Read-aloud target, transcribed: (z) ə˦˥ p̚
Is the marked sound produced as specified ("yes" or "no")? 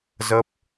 yes